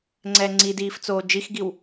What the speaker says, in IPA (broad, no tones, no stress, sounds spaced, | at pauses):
ŋ͡ǀ ɛː ŋ͡ǀ i d iː f t͡s oː d͡ʒ i x ɡ i w